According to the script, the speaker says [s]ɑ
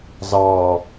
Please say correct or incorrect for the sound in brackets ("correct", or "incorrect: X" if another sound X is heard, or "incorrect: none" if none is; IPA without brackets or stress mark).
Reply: incorrect: z